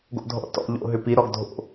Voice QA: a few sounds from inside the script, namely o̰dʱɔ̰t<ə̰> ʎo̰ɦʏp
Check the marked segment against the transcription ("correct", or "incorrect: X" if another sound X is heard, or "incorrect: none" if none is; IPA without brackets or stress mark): incorrect: ɔ̰